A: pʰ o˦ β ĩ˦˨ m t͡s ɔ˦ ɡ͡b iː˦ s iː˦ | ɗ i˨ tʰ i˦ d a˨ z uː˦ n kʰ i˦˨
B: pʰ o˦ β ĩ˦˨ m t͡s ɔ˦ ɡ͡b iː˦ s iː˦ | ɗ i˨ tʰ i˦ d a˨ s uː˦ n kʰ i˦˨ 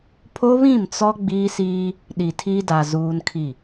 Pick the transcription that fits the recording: A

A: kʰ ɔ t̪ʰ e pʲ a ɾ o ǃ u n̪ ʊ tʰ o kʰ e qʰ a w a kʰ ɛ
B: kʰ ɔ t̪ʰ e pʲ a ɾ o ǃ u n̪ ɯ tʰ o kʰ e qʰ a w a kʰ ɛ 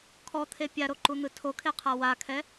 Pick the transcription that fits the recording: B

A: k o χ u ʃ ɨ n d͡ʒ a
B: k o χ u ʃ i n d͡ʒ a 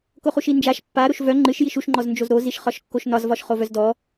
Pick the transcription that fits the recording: B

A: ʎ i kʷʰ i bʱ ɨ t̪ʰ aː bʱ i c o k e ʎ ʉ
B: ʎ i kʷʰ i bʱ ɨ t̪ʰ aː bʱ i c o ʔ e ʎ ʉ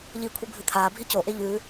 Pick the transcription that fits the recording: B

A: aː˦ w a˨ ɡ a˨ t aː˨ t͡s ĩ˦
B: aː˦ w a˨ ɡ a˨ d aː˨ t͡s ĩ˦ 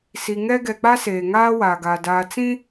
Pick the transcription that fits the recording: B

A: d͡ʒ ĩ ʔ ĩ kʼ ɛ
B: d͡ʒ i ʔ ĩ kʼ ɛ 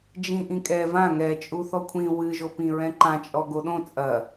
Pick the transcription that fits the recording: A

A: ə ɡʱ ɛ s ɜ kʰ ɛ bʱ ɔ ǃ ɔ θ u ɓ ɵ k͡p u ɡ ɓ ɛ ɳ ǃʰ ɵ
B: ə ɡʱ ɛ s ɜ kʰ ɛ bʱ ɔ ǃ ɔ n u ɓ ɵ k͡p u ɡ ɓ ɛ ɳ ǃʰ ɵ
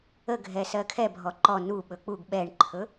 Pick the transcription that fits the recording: B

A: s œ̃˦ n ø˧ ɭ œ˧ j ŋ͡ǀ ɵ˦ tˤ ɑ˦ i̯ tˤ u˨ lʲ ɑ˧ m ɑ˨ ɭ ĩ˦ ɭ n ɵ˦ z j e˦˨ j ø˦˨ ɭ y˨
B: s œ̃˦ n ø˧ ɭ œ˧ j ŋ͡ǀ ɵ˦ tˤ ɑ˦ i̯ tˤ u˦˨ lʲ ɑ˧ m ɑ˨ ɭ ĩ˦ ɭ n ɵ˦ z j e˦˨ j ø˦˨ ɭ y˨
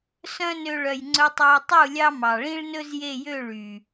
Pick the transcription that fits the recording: B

